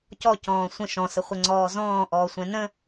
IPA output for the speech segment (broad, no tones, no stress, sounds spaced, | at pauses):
c ɔ c ɔ̃ː sʷ ə̃ ʃ ɔ̃ s ə χʷ ɛ ŋ͡ǀ ɔː z ɔ̃ː ʔ ɔː sʷ ɛ̃ n ə̃